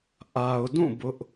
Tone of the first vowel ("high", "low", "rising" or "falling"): low